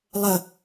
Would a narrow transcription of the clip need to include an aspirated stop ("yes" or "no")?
no